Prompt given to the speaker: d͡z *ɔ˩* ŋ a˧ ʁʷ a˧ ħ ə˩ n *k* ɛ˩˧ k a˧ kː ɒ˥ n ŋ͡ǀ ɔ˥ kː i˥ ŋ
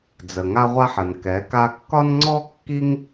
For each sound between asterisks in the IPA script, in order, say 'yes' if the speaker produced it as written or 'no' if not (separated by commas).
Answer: no, yes